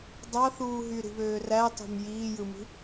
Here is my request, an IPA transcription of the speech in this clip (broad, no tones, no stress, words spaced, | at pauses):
dˤɑθuːɦy ɾi̤βøːrætˤo̤m jiːjɯmi̤